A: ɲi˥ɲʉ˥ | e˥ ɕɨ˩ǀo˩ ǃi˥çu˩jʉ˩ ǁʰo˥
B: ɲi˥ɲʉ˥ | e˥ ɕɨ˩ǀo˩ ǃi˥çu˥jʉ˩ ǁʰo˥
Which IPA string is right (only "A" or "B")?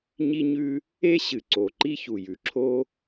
A